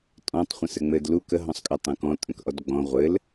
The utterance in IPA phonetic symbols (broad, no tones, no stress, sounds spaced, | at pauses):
tʼ ɔ̃ tˤ χʷ ə̃ s ɘ ŋ͡m ɘ d l u k ə ɦ ɔ̃ sˤ kʼ ə tˤ ũ k ɔ̃ tʼ ə̃ k ʔ ɔ d ɡ͡b ɔ̃ ʁʷ ɘ l